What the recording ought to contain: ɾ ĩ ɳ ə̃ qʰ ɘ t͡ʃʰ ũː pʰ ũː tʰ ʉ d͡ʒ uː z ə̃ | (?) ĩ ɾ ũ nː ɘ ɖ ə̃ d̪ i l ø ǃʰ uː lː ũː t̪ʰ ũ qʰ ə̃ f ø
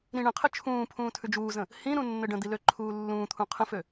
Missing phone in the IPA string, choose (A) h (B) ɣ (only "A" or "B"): A